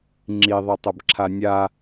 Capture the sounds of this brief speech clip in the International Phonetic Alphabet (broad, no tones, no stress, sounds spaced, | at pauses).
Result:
ŋ͡ǁ i ðˤ i tˤ ə b ǁʰ a nʲ a